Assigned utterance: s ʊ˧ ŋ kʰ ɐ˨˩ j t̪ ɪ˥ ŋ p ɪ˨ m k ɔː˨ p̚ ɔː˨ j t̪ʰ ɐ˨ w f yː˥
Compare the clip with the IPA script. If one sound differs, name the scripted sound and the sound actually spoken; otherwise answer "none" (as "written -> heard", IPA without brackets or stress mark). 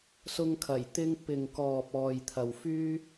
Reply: m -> ŋ